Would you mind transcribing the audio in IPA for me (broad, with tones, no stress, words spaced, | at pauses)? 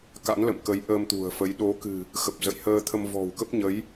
ka̰˧˥nlə̰˧˨mkə˨˦j ʔəː˧mt̪ṳ˨˩ə̯fə˨˦j ɗo˨˦kɨ̤˨˩ | xə˨˩p̚zə̰˧˨j həː˧t̪ʰə˧m vɔ̤˨˩wkə˦˥p̚ɲə˨˦j